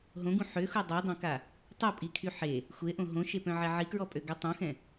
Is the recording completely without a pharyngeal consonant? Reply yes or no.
no